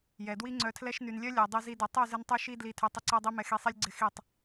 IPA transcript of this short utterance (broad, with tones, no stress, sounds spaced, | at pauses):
j ɛ˨ d w i˦ ŋ͡ǀ œ˧ tʰ l ɛ˦ ʃ n y˨ n lʲ œ˦ lʲ ɛ˨ dˤ i˧ z i˧ d y˨ tˤ y˦˨ z ɪ˧ n tˤ y˧ ʃ i˦ d l i˧ tʰ y˧ tˤ ɪ˦ ǀ ɛ˦ dˤ i˦ m ɛ˧ x i˧ sˤ i˦ lʲ ɡ͡ǀ ɪ˦˨ x i˦˨ tˤ